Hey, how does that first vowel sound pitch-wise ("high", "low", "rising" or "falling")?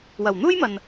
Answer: low